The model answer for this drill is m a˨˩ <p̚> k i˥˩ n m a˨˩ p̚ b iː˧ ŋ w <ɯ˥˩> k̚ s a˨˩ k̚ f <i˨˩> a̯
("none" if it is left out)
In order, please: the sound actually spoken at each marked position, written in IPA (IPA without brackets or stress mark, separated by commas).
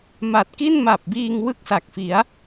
t̚, ɯ˥˩, i˩˦